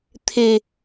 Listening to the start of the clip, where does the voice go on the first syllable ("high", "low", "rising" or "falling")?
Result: low